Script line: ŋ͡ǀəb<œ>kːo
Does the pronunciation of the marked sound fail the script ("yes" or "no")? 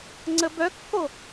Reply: no